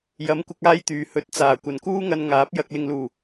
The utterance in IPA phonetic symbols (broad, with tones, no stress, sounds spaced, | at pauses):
j ɐ˨˥ m kʷ ɪ˧ k̚ aː˥ j t̪ yː˨ h ɵ˨˥ t̚ t͡s aː˨˩ kʷ ɐ˨ n k uː˥ ŋ ɐ˧ n ŋ aː˨˥ p̚ j ɐ˧ k̚ l ɪ˨ ŋ l uː˨˩